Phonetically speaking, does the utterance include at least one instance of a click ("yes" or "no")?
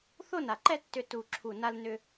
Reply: yes